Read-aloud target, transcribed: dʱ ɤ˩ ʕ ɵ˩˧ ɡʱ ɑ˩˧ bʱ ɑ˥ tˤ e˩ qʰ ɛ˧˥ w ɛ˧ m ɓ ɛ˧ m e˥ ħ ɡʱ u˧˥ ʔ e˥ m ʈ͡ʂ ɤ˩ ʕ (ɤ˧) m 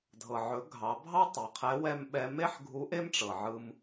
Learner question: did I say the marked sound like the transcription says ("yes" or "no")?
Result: no